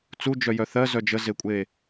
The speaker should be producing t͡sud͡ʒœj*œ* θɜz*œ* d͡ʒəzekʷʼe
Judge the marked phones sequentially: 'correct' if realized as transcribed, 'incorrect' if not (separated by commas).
correct, correct